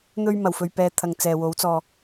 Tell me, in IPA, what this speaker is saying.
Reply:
n̪ ɵ˧ ɥ m ɐ˨˩ w f ɵ˨ ɥ p ɛː˨˧ t̪ʰ ɐ˨ ŋ t͡s ɛː˨ w o˨˥ w t͡s ɔː˨

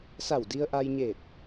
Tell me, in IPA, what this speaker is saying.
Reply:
s a˧˩ w d i˧ ə̯ ʔ a˧ j ɲ e˧˩ t̚

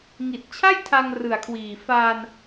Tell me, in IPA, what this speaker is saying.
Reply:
ŋ i˨˩ t̚ t͡ɕʰ a˥˩ j tʰ a˧ ŋ r ɯ˨˩ a̯ kʰ w iː˨˩ f aː˧ n

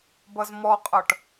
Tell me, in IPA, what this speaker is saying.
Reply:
b ʌ z m ɔ qʼ ʌ ʈ

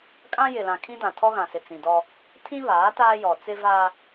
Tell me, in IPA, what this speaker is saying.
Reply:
kʼ ã˦ j ɪ˨ l ã˨ kʰ ĩ˦ d ã˨ tʰ ɔ˦ ɣ ã˨ s ɪ˨ t͡s ĩ˨ d ɔ˦ | tʰ ĩ˦ β aː˨˦ t aː˦ j ɔ˨ t͡s ɪ˦ v aː˦

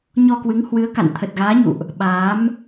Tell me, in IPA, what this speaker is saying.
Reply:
ɲ ɔ˧ k w ɨ˨˦ ŋ h w ɨ˨˦ ə̯ k a̰˧˨ n t̪ʰ ə˨˩ t̚ ɣ aː˨˦ ɲ ṵ˧˨ ʔ | ɓ aː˨˦ m

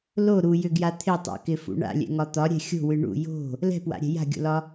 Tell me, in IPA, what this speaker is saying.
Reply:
l o ɾ u j ʏ ɡ j a t̪ʰ ɪ tˤ a̰ k ɪ f ṵ ɳ a̰ lʲ ɛ̰ ŋ ɒ t̪ ɒ ɾʲ ɛ̤ xʲ o̤ w ɨ ɳ ṵ j o̤ | l ɛ̤ p w a̰ ɾʲ ɛ̤ j a̤ ɡʲ o̰ l ɒ

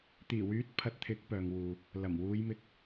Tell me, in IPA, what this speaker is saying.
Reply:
t̪ iː˨˩ w yː˨˥ t̚ pʰ ɐ˨˥ t̚ t̪ʰ ɪ˨˥ k̚ p œː˨ ŋ w uː˨ | l ɐ˨˩ m w uː˨˧ j m ɪ˧ k̚

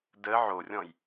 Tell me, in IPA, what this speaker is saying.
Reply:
d ə ʕ o rʲ ɔ̃ j

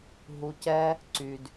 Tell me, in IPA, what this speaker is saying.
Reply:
ɦ u˧ c ɛ˦ | ǀ y˧ d

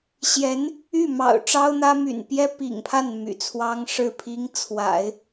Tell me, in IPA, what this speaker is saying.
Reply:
ɕ j ɛ˧˥ n | y˥˩ m ɑ̰˨˩ ʊ̯ ʈ͡ʂ ɑ˥ ʊ̯ n̪ ä˥ m y̰˨˩ n p j ɛ˥ p ḭ˨˩ ŋ pʰ a˥˩ n m y̰˨˩ t͡sʰ w ɑ˥ ŋ ʂ ɻ̩˥˩ pʰ i˥ ŋ t͡sʰ w a̰˨˩˦ ɪ̯

